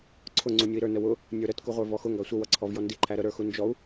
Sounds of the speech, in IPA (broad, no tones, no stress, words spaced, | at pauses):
ǀʰʊ ŋ͡ǀunʲui̯ɾə˞ nəwʊ | nʲə˞ɾət kuʁʷə˞vɔxʊ ŋɡɑsʷə wʌǀʰɔv jɔndi ǃʰæɾə ɾə˞xund͡ʒɔu̯